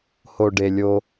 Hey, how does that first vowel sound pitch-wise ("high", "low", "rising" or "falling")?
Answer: low